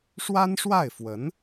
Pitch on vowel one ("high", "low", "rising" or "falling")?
high